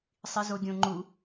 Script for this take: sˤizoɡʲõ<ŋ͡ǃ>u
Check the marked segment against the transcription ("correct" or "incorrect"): correct